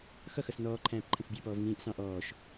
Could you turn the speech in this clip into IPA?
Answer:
xʌxʌs nɔːǃʰæ̃ːp ǃʰə̃fbʲɑpɔːv ŋĩːʔsɑ̃ ʔɔːʃ

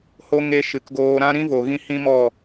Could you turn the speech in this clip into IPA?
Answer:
ho˧ ŋe˧ʃɨ˨kɡoː˧ ɾã˦ ɾĩ˦vo˨ɣĩ˧ hĩ˦mɔ˦˨

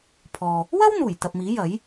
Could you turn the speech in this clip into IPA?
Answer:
pʰɔː˨ | wɐ˥w n̪uː˨˩jt̪ɐ˨p̚miː˨˥ jɐ˨˥j

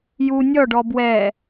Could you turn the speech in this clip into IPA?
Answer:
ju nʲɔɖɔ bwɛ

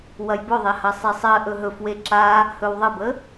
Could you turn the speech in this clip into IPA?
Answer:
wɐjbɵðˤɛ hɐsˤisˤɜʔɵ ɦɵfwe ǁa | hɵwðˤəbə

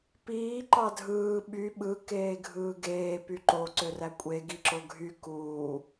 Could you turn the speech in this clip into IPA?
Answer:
piː ǃɑdʱɯː ɓy ɓɯ keːɡʱɯːɡeː pyǃo ǀørækʷʼe ɡiǁoɡʱy kuː

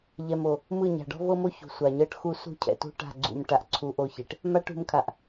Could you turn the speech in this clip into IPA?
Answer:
ʎɛ˨mo˨ | mɯ˦˨ɲa̤˨ ɖɔ̤˦vɤ˦mo˦ çṳ˨sʷa˨ɲɤ˦ʈxu˦ sṳ˦˨cʰɛ̰˨ tṳ˦ʈa̤˦˨ɡ͡ǀṵ˨m ʈa˨ʔǀʰu˨ ʔo˦˨çe˨ʈ | ma˦ʈṳ˨˦mkʰa˨ʔ

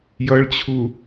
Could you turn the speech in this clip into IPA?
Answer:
jʌɭt͡ɕʰu

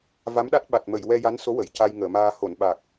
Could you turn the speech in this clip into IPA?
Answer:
va˧˥mɗa˦˥t̚ɓa˨˩t̚mə˨˩˨j wɛ˧ja˧˥nso˧˥ wə˨˩˨jca˧j ŋəː˨˩˨maː˧ ho˨˩˨nɓa˨˩k̚

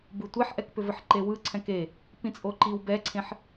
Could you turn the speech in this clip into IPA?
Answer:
bɯtʷeħʔɛk pʏvɘħǃewɯ ǀʰɛ̃ke | pĩt͡sʼoǃiw bɛǀʰẽħ

